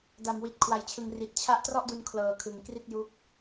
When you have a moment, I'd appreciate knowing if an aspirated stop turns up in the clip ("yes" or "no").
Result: yes